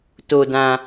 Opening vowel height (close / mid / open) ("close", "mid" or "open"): mid